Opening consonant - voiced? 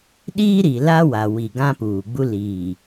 yes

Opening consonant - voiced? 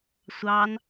no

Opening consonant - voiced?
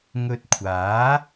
yes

